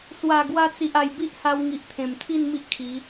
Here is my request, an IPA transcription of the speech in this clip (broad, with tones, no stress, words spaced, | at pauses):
swa˨˩ ɡwa˧t͡si˨ʔa˨˩j bi˦ʔha˧wŋi˨ʔ t̪ʰẽ˨˩mt̪ʰi˥˧n mi˦ʔkʰi˨˦